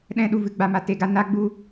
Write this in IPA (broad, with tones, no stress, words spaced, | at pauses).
ɗɛ̃˦ ɗu˧vɨ˦ɡ͡ba˧ma˧ te˧ɡa˦ na˦ɡ͡bu˦